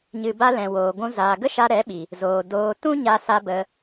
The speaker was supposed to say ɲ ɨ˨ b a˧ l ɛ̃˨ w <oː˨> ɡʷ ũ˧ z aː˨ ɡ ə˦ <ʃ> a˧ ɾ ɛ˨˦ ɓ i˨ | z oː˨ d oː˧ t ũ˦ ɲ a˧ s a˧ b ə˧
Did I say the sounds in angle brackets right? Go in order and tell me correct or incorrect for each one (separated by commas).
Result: correct, correct